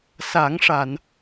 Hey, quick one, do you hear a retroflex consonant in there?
yes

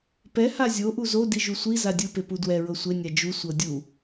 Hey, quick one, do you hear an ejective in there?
no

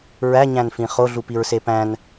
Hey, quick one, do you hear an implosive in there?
no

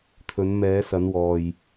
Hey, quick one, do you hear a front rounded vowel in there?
no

